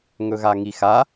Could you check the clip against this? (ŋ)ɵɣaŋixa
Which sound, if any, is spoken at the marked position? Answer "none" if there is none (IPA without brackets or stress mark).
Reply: ŋ